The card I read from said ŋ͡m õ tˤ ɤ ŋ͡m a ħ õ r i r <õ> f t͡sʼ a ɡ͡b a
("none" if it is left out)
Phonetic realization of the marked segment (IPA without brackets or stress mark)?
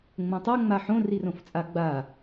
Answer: õ